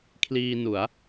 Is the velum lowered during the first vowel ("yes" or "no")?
no